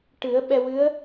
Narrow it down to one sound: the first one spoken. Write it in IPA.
ʈ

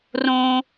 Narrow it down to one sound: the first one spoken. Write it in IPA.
r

